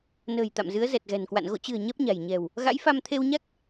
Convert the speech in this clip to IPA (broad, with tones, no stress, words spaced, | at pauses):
nə̤ː˨˩j t̪a̰˧˨mzɨ˨˦ə̯ zɛ˨˩t̚ɣɛ̤˨˩nkwa̰˧˨n ɣo̰˧˨t͡ɕɨ̤˨˩ə̯ ɲɛ˦˥p̚ɲa̤˨˩j ɲɛ̤˨˩w | ɣa̰˧˥jfa˧m t̪ʰe˧wɲa˦˥k̚